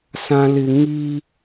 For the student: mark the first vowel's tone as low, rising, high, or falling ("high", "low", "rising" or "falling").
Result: high